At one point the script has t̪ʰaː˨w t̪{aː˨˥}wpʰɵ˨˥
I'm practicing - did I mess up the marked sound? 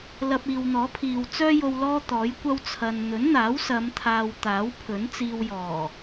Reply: no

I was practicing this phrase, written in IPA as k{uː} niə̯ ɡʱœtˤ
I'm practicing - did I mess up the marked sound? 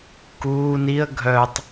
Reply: no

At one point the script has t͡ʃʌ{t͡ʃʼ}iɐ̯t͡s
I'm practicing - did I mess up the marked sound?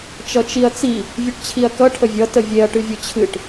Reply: yes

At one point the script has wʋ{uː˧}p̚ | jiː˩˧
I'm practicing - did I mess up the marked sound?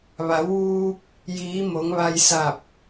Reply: no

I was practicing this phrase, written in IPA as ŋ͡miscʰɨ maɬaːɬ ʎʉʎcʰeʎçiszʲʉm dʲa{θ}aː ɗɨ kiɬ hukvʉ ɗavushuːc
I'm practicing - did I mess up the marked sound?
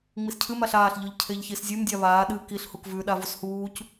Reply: yes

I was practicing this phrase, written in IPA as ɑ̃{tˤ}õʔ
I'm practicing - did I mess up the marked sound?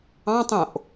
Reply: no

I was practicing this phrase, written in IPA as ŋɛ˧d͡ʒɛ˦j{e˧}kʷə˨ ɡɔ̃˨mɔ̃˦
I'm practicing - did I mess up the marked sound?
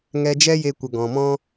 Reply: no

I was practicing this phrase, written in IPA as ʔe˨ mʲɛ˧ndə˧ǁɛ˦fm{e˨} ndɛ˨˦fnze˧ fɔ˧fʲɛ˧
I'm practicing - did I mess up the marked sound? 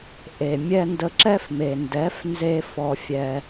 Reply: no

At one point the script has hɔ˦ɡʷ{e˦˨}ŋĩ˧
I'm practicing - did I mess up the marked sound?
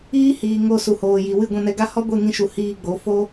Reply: no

